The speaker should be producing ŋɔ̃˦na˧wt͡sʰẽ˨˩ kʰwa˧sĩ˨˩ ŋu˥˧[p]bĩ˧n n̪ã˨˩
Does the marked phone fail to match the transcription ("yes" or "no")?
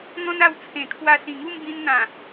yes